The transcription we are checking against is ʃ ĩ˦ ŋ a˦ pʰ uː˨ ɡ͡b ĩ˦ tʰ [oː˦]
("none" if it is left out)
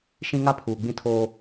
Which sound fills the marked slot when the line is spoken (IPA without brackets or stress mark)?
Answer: oː˦